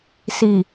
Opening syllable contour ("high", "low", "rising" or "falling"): low